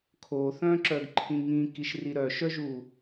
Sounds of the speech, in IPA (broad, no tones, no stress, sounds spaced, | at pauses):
kʰ o θ œ̃ ǁ œ ɡ ǃʰ ĩ ŋ ĩ k i ʃ r i ɾ œ ʃ œ ʒ u